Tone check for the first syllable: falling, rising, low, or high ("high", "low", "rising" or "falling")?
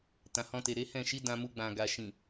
low